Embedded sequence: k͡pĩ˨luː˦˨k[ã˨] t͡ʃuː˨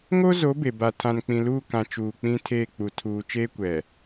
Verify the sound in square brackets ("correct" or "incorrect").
correct